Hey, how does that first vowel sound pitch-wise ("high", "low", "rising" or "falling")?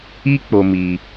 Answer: high